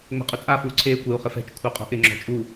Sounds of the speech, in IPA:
ŋ͡mɛ̤qʼʊt͡sʼa fuːǀʰeː kʷɪu̯ χɪfɛ̤t͡ʃ kʷʰɪːqʼo̤ʔɪ ŋ͡ǁɔ̤t͡ʃʼu

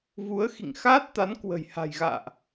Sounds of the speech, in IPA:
vu˨˦ə̯xḭ˧˨ŋxaː˦˥t̚t̪a˨˦n kwə̤˨˩jha̤˨˩jɣa̰ː˧˨ʔ

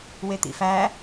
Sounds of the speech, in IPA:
wet̪ḭfæ

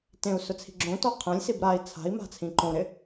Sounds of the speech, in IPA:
tẽu̯ sʊt͡sʰi̤ɡ͡ǁõtɔ qʰɛ̃lʲsib ɾai̯ t͡sʰa̤i̯ma̤ t͡sʰĩǃõɾɪ

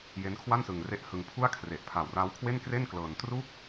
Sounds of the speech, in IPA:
je˦˥nkʰwa˥˩nsɯ˧ŋre˦˥ʔ hɯ˧ŋpʰu˥˩a̯kʰre˨˩ʔ pʰa˨˩wra˦˥w kʰwe˥˩nkre˥˩n klɤː˧n tru˥˩k̚

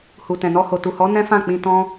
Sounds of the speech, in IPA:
hu˨tɛ̃˨nɔ˧ho˨ tu˨hɔ˨˦ nɛ̃˦fã˦˨k͡pĩ˧ tɔ̃˧

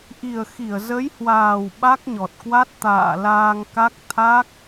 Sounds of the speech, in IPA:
ʔi˨˩ə̯ xi˧˩ə̯ zə˨˦jhwaː˨˩w ɓa˦˥k̚ɲɔ˨˩t̚kwa˦˥t̚ t̪a̰ː˧˨laː˧ŋka˦˥k̚ t̪ʰa˦˥k̚

